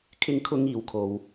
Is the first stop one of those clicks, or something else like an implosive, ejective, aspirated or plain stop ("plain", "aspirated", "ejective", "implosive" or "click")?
aspirated